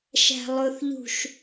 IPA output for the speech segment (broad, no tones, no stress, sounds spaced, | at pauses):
ʃ æ̤ lˠ ʊ θ ʎ ṳ ʃ